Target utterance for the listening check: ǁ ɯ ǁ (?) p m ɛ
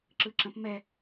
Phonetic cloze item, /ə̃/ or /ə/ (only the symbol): ə̃